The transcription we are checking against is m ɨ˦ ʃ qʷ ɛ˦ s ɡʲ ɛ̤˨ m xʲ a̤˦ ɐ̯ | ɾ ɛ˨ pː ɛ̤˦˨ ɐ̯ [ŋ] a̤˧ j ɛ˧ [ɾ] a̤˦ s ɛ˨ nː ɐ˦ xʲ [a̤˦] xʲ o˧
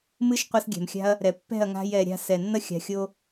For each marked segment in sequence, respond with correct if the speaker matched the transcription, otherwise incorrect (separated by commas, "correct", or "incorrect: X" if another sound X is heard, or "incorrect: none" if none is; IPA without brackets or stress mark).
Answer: correct, incorrect: ɾʲ, incorrect: a̤˨